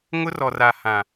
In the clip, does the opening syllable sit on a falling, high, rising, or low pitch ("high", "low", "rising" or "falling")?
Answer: high